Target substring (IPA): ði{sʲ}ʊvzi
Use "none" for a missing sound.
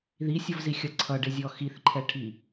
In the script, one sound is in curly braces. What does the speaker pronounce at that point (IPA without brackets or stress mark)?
sʲ